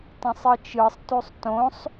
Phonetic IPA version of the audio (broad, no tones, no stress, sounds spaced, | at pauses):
t ã sˤ ɯ t͡ʃ ɯ sˤ t u sˤ t õ sˤ